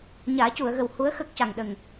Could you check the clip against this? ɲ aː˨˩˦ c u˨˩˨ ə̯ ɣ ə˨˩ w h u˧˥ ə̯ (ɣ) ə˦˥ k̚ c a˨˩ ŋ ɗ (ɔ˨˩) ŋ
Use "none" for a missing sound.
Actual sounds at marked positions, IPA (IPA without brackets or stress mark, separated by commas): x, ə˨˩